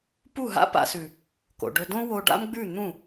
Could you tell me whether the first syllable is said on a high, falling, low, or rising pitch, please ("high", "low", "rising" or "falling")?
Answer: falling